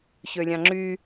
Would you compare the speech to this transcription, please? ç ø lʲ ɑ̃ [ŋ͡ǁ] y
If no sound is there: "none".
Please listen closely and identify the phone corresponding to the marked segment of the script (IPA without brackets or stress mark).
ŋ͡ǁ